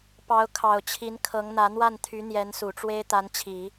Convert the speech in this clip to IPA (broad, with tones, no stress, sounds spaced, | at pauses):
p ɑ˧˥ ʊ̯ kʰ ɑ˨˩ ʊ̯ t͡ɕʰ i˧˥ n kʰ ɤ˧˥ ŋ n̪ ä˧˥ n̪ w a˥˩ n t̪ʰ y˧˥ n̪ j ɛ˧˥ n s u˨˩ ʈ͡ʂ w e˥ ɪ̯ t̪ a˧˥ n t͡ɕʰ i˨˩˦